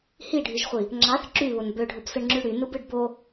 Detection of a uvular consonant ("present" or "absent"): present